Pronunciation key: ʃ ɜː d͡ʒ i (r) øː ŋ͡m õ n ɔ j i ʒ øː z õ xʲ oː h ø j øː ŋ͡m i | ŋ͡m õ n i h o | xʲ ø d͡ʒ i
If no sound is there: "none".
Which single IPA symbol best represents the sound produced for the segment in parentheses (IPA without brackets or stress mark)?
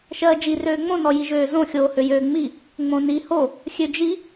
r